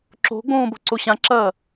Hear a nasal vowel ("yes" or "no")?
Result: yes